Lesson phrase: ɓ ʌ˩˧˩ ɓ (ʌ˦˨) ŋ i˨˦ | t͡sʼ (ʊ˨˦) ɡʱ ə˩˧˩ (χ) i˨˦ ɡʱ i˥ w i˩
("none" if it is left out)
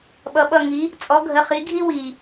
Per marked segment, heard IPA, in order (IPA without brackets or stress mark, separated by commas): ʌ˦˨, ɔ˨˦, χ